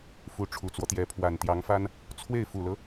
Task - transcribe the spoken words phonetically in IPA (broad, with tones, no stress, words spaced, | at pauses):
fu˧˥ʈ͡ʂʰu˨˩t͡swɔ˦t̪jɛ˧˥ pʰwa˨˩nt̪jɑ˧˥ŋfa˥n | t͡sʰwe˥˩ɪ̯fu˨˩lɤ˦